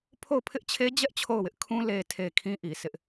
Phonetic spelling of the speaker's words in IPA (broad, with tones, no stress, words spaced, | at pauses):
pʰo˦˨ʊ̯pʰɪ˦ʔt͡ɕʰe˦d͡ʑɛ˦ʔ t͡ɕʰo˦˨ʊ̯wɪ˦ʔkʰũ˦ le˨tʰe˨ kʰĩ˦ʔi˨ sɪ˦ʔ